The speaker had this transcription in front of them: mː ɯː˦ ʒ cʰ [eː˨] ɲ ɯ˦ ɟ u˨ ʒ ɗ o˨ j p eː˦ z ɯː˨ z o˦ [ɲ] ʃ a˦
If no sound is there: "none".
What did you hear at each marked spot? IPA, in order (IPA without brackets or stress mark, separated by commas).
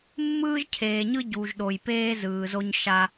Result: eː˨, ɲ